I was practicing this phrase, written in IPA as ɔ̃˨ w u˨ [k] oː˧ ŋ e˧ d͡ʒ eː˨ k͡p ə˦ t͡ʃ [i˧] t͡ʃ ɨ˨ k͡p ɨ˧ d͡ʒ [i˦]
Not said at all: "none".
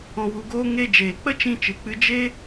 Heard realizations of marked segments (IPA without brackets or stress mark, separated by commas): ɡ, ĩ˧, e˦